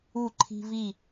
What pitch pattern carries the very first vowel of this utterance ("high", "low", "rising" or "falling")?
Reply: falling